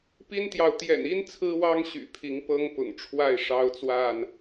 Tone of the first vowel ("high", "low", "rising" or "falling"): high